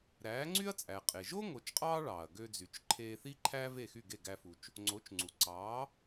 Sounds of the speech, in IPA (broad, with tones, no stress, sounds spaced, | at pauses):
ɾ æː˩˥ ŋ͡ǀ y˥ ɐ̯ t͡sʼ æ˩ qʼ e˩ ʒ o˥ ŋ o˩˥ t͡ʃ qʼ ɑː˥ ɭ ɑː˩ ɐ̯ ɡ ø˧ d͡z y˩ t͡ʃ ǃʰ eː˧ θ i˥ ǃʰ æ˥ v e˥˩ x y˥˩ ɡ e˥˩ ɡ æ˧ f u˩ t͡ʃ | ŋ͡ǀ o˩˥ t͡ʃ ŋ͡ǀ u˩ ǀ ɑː˩˥